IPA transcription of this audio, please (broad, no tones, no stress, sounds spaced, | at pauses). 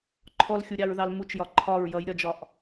ǃʰ ɔ l xʲ u ɾʲ ɑ ɹ ð ɑ l m u t͡ʃ j ɒ ǃʰ ɒ ɹ j ʌ j ɾʲ ɒ d͡ʒ ɒ ʔ